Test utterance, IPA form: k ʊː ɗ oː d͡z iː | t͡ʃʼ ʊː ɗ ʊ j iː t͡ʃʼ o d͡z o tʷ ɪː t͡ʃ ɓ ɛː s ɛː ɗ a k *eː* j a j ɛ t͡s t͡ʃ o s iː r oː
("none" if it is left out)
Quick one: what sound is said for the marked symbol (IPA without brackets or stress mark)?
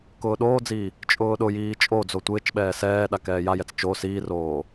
ɛː